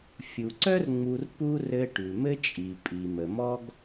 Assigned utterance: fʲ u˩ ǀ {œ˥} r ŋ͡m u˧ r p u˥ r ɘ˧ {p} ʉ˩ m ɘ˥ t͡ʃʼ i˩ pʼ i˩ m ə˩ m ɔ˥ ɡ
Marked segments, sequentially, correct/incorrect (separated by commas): correct, incorrect